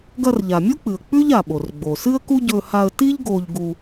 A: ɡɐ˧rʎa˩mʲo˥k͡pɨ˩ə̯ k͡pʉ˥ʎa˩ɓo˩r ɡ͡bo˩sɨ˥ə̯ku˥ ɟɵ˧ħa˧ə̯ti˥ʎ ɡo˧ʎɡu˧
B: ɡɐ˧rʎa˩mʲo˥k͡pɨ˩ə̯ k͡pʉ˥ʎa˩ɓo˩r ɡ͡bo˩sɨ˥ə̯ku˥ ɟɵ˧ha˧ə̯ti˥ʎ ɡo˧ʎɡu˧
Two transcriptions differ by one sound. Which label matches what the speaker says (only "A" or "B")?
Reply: B